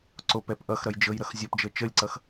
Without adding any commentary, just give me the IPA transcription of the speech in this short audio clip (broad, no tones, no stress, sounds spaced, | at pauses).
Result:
ǀ o p ɛ p ʔ ʌ x ɾ ʌ j d͡ʒ ɤ j ɾ ʌ x zʲ ɔ p d͡ʒ ɤ t͡ʃ ə lʲ ǀ ʌ x